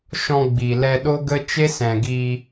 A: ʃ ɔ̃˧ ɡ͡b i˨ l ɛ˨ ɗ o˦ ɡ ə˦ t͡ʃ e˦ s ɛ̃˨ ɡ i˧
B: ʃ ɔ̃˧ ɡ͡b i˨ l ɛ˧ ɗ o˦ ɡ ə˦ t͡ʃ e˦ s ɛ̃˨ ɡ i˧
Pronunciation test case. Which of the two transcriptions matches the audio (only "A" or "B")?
B